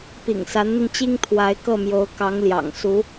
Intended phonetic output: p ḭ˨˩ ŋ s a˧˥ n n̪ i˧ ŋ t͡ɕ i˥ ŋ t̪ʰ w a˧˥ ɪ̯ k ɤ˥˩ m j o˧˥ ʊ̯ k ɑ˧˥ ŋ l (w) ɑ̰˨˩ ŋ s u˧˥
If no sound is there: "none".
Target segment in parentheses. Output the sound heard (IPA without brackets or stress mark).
j